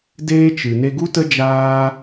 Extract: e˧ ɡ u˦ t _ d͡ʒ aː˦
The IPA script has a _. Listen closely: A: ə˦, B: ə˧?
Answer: A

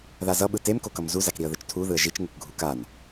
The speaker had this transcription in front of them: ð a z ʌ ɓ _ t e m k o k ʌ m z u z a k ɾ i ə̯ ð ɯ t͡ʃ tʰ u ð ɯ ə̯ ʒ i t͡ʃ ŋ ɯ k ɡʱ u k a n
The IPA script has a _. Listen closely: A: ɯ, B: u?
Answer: A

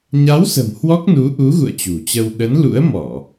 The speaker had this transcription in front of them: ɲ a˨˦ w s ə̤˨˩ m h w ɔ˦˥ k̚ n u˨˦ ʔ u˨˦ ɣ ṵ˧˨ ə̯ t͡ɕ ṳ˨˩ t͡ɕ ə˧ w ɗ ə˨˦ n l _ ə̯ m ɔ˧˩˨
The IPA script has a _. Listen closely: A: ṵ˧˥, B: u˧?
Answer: A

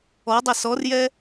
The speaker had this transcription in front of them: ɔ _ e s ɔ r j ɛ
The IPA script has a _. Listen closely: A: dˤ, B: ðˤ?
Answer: A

